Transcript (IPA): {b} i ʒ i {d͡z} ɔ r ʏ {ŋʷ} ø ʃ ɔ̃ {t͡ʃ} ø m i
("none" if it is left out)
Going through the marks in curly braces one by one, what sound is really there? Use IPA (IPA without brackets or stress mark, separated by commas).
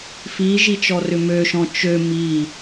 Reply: f, t͡ʃ, m, t͡ʃ